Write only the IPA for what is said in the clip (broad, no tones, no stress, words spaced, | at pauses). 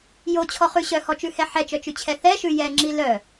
jot͡ɕʰɔχʉ ɕœhɔt͡ʃʉhɛ ħɛt͡ʃœt͡ʃʉt͡ɕʰɛ θɛʃʉ jɛŋ͡ǁi lœ